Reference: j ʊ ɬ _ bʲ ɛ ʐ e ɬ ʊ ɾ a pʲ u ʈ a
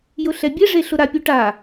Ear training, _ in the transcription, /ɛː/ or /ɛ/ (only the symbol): ɛ